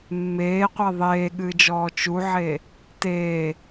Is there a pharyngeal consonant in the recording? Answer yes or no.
yes